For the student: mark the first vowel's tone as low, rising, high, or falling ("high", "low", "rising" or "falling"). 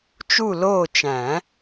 falling